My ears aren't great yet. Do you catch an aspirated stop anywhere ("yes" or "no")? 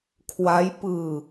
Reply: yes